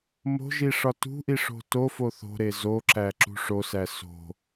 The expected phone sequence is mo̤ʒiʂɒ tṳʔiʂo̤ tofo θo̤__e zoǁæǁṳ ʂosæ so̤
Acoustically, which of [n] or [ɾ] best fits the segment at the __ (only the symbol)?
ɾ